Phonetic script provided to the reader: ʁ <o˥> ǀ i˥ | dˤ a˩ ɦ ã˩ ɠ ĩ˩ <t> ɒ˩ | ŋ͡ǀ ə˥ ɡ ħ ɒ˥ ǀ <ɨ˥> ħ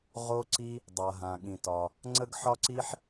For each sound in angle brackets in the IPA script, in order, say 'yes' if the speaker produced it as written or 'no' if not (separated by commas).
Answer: yes, yes, no